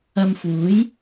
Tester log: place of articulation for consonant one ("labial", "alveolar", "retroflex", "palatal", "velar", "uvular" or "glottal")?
labial